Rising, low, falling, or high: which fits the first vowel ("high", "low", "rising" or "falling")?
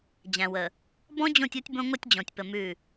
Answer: low